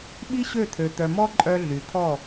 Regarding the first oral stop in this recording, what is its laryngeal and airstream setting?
implosive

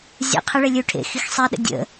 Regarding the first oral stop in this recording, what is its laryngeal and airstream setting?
aspirated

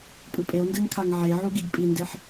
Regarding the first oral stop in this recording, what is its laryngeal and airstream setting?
ejective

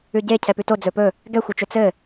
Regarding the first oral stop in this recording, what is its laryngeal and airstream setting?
plain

